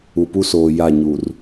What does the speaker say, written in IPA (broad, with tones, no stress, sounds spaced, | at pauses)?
u˨ p u˦ s oː˨ j a˦˨ ɲ u˨ r